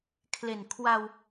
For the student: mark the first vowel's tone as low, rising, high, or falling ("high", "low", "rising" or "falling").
low